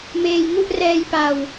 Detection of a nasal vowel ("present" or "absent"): absent